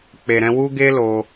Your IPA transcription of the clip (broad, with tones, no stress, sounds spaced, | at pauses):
k͡p e˨ ɾ ɛ̃˧ w u˦ ɡ e˦ l o˧